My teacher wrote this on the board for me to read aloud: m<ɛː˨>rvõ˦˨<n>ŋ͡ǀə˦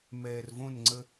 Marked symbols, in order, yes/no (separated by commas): yes, yes